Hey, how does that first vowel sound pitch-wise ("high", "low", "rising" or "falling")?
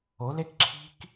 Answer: rising